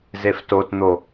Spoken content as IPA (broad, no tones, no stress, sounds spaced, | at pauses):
z e f t o t n̪ o